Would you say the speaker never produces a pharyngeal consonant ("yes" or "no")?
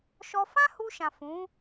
yes